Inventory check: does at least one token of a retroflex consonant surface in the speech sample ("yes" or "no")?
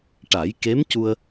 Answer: yes